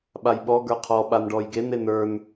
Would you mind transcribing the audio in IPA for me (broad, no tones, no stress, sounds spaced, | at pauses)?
ɓ a j ɓ ɔ ɡ ə˞ qʰ ɔ ɓ a n ɖ ɔ j ɡ e n e n ə˞ n